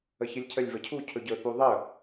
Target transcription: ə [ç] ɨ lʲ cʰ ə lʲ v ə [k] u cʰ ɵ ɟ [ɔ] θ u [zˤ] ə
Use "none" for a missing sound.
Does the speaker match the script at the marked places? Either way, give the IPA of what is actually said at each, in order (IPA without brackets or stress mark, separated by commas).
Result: ç, cʰ, ɵ, ðˤ